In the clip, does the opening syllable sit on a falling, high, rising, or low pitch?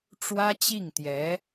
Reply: high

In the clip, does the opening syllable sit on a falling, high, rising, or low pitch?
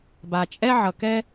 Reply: low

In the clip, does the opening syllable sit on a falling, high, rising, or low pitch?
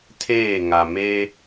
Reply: falling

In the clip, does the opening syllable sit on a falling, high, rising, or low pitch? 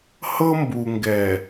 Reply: high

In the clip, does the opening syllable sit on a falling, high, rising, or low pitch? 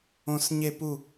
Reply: falling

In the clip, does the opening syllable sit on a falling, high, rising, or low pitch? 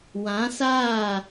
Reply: rising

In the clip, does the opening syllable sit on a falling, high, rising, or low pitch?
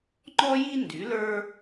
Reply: high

